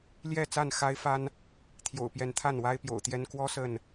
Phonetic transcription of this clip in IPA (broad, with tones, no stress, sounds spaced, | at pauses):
l j ɛ˥˨ t͡s a˥˨ n x a˦ ɪ̯ f a˦ n | t̪ʰ j o̰˨˩ ʊ̯ p j ɛ˨˦ n t̪ʰ a˥˨ n w a˦ ɪ̯ p j o̰˨˩ ʊ̯ t̪ j ɛ˦ n k w ɔ˦ s ə˥˨ n